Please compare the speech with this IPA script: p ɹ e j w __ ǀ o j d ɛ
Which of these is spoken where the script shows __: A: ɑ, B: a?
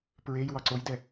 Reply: A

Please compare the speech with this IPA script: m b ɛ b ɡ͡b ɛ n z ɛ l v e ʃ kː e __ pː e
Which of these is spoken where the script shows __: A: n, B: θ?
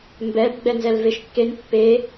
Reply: A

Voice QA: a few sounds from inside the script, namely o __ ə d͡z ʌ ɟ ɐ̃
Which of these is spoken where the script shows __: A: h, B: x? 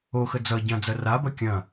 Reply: B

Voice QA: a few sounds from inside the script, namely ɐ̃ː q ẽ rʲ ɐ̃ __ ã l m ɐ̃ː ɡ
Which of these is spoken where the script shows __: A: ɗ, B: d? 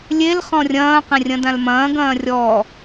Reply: B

